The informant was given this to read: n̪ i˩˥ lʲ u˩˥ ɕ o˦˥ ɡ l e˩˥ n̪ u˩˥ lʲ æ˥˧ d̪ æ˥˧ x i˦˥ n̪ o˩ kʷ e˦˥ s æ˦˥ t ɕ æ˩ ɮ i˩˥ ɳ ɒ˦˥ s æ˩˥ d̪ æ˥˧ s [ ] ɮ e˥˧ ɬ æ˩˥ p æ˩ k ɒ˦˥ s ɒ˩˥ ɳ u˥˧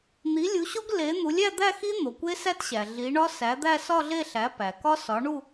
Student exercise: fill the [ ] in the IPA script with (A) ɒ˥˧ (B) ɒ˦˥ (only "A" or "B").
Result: A